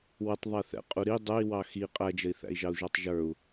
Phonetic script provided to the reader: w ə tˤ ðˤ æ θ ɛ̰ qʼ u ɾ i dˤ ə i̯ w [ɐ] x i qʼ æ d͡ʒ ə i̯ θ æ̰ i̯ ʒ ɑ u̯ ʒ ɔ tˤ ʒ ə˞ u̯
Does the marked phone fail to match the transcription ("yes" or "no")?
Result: yes